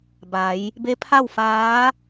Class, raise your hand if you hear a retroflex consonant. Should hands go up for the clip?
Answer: no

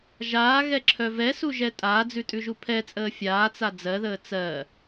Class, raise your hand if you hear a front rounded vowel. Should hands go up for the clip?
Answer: yes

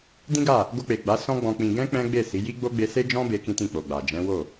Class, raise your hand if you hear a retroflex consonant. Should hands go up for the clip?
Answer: no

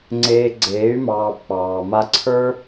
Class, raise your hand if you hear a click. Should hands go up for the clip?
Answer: yes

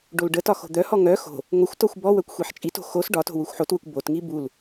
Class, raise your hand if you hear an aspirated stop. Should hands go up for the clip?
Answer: no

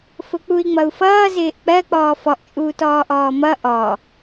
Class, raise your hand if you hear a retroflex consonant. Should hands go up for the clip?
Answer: no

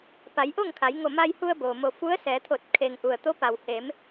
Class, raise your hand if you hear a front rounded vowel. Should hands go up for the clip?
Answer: no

